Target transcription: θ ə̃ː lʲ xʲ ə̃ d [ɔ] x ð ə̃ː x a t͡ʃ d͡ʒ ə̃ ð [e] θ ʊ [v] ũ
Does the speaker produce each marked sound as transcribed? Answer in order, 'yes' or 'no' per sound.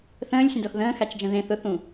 yes, no, no

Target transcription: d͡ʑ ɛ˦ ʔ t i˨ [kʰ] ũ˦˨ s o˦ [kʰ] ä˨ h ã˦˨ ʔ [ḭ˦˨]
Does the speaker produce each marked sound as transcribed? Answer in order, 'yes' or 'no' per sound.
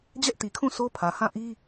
yes, no, no

